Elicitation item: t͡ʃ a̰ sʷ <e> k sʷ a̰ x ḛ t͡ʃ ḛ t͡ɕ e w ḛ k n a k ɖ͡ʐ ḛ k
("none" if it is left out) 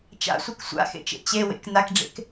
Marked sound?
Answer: ɨ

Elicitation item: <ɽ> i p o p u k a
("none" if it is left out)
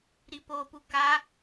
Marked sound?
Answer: ɾ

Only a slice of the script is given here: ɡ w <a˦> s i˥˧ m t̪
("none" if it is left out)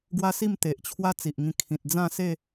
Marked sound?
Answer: a˦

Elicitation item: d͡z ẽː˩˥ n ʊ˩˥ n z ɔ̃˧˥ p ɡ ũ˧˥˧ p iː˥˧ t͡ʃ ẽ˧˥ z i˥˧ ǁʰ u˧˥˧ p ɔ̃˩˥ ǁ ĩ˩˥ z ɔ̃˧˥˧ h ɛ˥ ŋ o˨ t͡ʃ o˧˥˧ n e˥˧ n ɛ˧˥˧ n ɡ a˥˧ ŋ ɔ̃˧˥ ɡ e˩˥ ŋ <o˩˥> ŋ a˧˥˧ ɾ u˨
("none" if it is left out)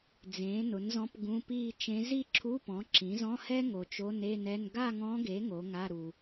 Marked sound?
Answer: o˩˥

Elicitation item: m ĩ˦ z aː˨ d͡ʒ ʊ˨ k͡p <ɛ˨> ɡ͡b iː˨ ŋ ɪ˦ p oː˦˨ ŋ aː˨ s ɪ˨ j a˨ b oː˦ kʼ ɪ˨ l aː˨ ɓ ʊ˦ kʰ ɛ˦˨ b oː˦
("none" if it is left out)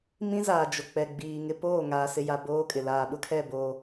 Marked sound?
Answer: ɛ˨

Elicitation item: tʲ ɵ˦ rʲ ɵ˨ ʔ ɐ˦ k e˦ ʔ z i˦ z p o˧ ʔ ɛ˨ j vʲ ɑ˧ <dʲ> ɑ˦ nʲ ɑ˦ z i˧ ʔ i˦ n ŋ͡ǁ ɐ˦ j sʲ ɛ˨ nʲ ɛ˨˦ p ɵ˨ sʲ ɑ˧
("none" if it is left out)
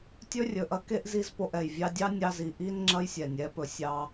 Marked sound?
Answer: dʲ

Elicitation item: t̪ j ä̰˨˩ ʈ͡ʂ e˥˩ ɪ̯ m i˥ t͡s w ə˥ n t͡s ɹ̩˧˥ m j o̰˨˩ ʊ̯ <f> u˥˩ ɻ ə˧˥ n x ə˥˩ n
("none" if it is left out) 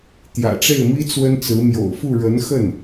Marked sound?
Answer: f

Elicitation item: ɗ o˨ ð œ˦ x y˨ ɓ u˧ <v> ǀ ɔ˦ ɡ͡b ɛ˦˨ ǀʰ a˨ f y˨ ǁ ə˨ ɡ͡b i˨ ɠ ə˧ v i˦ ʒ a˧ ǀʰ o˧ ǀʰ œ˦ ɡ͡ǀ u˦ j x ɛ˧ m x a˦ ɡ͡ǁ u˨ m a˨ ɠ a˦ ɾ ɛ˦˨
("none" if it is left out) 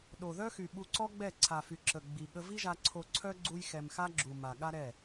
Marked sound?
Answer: none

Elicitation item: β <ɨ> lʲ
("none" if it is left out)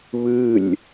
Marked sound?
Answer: ɨ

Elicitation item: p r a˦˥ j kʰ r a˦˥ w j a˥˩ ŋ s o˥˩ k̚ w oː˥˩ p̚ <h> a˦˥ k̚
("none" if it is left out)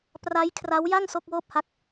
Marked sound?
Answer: h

